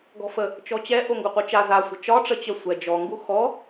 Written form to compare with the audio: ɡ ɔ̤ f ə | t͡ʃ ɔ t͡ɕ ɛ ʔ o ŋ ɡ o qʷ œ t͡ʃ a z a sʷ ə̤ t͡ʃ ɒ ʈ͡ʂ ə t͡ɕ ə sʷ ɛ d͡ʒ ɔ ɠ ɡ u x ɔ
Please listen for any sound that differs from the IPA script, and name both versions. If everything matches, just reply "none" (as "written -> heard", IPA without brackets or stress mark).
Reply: ɠ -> ŋ